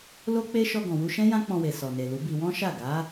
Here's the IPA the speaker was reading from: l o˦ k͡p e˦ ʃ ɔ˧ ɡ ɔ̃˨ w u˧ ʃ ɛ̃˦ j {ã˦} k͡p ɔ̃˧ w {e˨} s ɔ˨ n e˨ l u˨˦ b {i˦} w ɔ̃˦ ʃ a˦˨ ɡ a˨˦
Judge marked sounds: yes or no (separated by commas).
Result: yes, yes, no